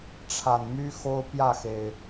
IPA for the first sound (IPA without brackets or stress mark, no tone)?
ʈ͡ʂʰ